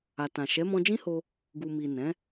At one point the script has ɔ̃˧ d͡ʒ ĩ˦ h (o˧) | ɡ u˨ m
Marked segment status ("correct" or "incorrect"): correct